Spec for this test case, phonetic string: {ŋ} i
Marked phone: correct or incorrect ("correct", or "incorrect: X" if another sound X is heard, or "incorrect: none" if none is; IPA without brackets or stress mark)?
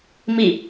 incorrect: m